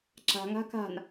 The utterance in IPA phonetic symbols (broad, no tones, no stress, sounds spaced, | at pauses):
ǁ a̤ ŋ a̤ k a̤ n